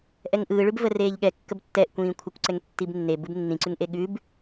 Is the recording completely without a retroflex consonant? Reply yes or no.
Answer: no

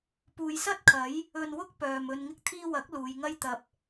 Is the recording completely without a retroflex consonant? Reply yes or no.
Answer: yes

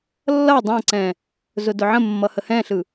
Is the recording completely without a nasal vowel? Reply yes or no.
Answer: no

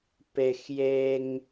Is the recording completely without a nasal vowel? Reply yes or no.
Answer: yes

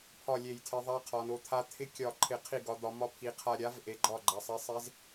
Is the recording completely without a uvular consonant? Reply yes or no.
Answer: no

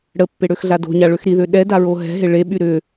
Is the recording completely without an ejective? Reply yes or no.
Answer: yes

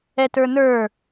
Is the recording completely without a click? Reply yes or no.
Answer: yes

